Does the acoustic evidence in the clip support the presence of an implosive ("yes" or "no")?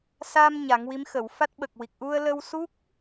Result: yes